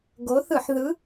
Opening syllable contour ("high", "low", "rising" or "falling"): rising